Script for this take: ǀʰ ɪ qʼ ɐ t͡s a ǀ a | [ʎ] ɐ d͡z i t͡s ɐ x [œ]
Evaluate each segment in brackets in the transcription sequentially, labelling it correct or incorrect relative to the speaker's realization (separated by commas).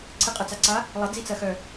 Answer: incorrect, correct